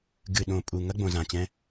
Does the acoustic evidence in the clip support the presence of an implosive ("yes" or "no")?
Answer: yes